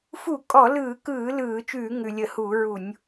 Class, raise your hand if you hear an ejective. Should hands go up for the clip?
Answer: yes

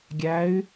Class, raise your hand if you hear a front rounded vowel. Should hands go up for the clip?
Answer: yes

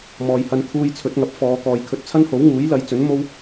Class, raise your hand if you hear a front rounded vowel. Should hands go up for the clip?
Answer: no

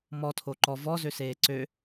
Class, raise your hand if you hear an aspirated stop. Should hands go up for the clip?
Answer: yes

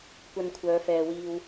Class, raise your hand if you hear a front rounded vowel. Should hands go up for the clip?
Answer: yes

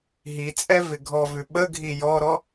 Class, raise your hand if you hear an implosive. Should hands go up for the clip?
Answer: yes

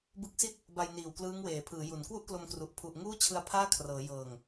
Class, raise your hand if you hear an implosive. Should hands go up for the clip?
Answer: no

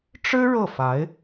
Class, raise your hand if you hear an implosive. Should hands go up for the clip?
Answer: no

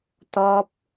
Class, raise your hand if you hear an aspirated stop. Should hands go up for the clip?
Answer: no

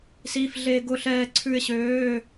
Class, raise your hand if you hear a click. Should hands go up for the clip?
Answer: yes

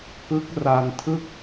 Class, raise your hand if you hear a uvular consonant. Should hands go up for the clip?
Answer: no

